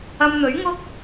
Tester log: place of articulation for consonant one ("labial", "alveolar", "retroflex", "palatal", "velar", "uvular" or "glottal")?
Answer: labial